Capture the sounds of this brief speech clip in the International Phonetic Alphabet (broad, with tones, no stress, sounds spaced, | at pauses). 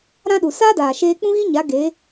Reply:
ɾ ã˦ ɗ u˨ s aː˦ d aː˨ ʃ eː˧ k͡p ũ˦ ɣ i˦ ɲ a˨˦ ɡ e˨˦